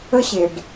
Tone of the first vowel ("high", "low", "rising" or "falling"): high